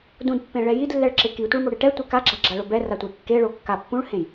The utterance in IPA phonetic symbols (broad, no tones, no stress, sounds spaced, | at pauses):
d ũ d pː ẽ ɭ ɛ j i d lː ɛ ɭ ǁ ɪ k i tʷ ɪ ɭ m o ɽ e ʈ ɛ tʷ e k a ɡ͡ǁ a ɡ͡ǁ a ɭ o b ɛ r a tʷ e kː e ɭ o kː a pː ũ ɭ h ẽ j